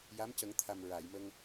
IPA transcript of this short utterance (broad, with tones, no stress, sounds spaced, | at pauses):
j a˧˥ m c ə˨˩˦ ŋ t̪ʰ a˨˩ m ɹ a˨˩˨ j m ə˧ ŋ